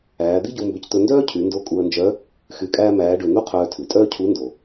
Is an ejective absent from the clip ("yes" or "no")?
no